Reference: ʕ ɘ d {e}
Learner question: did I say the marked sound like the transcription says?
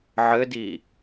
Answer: no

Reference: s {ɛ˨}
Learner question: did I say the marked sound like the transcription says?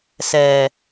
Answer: yes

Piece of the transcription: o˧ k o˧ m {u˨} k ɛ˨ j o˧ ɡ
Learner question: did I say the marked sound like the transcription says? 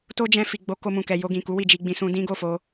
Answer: no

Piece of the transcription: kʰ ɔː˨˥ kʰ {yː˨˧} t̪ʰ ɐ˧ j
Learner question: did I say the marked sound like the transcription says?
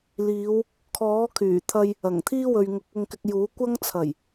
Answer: no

